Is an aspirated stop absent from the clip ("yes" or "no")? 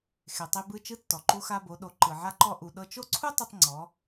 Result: no